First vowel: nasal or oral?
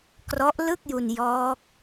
oral